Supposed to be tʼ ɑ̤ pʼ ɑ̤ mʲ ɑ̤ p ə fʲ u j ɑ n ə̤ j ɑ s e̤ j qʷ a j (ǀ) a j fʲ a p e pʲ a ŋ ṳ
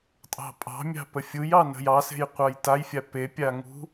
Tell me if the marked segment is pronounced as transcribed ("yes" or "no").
no